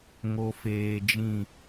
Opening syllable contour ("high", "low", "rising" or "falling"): low